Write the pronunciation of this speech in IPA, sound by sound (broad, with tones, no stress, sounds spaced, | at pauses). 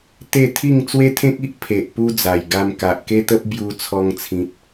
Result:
t̪ e˥˧ t̪ʰ i˥˧ ŋ t͡s w e˦ t̪ʰ ẽ˦ k̚ i˦ ʔ pʰ e˨ ʔ p u˦ d͡z a˨˩ j ɡ a˧ m k a˨ ʔ k e˦ t̪ ə˦ p̚ b j u˧ t͡sʰ ɔ˧ ŋ t͡sʰ ĩ˨ t̚